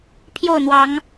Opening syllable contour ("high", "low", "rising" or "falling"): falling